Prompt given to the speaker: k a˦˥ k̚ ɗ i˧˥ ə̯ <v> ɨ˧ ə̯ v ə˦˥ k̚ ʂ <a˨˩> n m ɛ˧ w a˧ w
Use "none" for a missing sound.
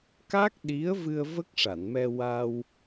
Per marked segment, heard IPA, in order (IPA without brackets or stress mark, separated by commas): v, a˨˩˨